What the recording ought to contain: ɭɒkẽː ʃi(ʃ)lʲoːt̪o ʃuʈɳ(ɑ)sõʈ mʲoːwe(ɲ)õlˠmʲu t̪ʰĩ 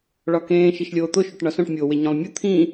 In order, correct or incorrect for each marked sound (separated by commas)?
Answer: correct, incorrect, correct